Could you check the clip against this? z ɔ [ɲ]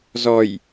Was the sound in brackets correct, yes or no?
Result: no